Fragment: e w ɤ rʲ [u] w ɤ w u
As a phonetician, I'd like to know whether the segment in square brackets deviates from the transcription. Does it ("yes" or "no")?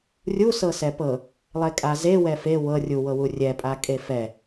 no